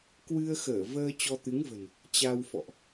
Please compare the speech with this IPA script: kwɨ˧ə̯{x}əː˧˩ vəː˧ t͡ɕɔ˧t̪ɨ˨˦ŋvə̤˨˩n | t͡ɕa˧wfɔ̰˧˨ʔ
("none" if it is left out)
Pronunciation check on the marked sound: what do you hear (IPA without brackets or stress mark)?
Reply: x